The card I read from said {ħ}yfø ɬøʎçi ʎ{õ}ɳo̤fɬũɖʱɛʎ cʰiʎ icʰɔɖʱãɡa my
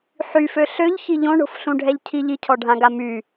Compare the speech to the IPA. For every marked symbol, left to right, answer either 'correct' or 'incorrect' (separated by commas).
correct, correct